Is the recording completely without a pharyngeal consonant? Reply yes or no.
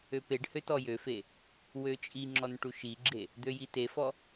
yes